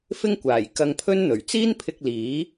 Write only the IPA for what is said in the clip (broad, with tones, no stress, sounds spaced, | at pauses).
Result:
f ɪ˥ ŋ kʷ aː˨˩ j k ɐ˧ ŋ pʰ ɵ˥ n n̪ ɵ˨˩ ɥ t͡s iː˥ n pʰ ɪ˧ k̚ l iː˨˥